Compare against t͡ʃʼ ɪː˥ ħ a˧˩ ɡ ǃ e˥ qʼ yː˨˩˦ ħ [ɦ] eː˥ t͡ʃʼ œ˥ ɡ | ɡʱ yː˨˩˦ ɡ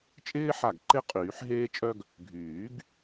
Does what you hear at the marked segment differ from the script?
no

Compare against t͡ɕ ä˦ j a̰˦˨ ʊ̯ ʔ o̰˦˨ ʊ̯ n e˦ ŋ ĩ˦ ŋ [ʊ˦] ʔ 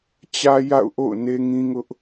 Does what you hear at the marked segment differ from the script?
no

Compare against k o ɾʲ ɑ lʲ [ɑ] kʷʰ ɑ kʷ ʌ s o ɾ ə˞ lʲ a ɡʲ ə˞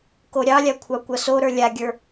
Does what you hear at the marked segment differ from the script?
yes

